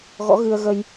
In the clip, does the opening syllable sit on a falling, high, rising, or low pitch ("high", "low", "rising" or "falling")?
rising